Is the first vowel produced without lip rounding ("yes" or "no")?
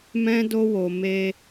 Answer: yes